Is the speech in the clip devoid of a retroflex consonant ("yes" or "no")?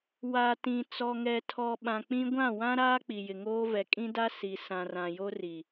yes